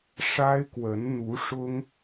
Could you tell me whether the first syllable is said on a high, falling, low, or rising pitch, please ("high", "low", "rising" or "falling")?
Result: high